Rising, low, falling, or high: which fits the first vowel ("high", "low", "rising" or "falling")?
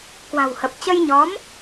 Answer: low